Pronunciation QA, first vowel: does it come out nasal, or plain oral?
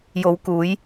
oral